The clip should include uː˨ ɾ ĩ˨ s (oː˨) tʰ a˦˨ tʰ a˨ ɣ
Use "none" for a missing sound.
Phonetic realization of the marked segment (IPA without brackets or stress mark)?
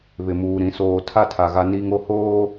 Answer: oː˨